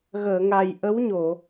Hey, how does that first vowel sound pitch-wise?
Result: low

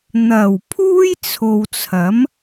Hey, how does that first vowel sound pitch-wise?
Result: low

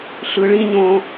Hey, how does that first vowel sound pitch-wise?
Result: low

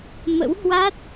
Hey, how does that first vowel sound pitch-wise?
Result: rising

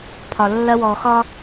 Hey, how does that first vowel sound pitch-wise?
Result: low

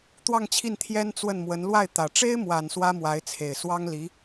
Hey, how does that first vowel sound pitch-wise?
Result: falling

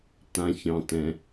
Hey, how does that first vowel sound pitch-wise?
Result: low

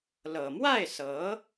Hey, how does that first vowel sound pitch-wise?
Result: low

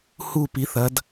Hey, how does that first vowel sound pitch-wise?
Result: falling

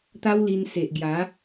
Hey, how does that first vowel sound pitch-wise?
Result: high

